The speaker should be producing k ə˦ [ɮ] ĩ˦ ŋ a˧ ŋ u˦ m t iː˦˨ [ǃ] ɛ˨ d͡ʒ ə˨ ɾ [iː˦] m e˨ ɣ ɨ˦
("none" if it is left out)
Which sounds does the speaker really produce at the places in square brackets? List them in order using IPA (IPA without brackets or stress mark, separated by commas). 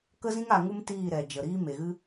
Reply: z, ɾ, iː˦